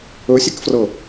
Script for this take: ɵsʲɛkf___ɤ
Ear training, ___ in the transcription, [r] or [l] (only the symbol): r